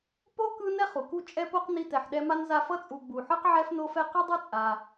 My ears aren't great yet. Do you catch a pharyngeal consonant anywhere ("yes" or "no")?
yes